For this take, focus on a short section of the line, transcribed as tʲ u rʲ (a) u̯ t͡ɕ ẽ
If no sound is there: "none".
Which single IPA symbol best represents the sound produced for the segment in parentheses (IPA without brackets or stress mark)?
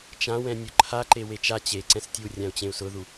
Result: ã